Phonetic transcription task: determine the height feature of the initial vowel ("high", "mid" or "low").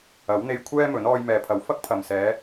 low